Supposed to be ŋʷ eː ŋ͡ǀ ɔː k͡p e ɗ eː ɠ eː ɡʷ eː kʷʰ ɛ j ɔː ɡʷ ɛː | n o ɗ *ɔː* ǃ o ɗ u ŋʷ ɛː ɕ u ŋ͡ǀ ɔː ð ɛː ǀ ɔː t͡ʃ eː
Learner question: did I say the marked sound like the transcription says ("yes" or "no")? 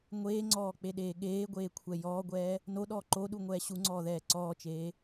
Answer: yes